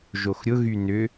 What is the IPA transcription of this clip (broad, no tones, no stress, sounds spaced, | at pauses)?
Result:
ʒ o x ɾʲ ʊ ɣ y n ʏ